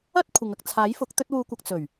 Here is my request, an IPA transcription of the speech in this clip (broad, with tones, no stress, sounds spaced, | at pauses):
ɐ˥ t̚ kʷʰ ɪ˨ ŋ ɐ˨ k̚ t͡sʰ aː˨˥ j f ʊ˨˥ k̚ t̪ ɵ˧ t̚ w uː˨ kʷ ɐ˨ k̚ t͡s ɵ˨˩ ɥ